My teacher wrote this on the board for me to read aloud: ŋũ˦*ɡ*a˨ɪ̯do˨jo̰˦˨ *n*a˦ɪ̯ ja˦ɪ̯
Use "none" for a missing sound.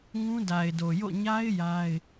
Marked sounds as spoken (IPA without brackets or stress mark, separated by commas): d, ɲ